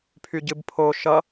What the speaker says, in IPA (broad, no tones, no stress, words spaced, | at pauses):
pʰyɟɨbpʰo ʃʌ